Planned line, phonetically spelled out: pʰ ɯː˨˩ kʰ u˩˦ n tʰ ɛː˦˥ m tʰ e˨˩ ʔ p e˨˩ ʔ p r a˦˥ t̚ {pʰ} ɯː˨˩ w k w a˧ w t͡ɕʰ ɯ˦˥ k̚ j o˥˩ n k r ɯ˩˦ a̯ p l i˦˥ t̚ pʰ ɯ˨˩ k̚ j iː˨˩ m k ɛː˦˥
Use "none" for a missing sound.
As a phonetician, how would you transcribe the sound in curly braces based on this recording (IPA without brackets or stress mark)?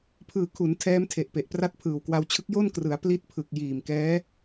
pʰ